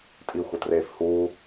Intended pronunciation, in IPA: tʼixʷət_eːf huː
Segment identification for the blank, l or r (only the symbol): r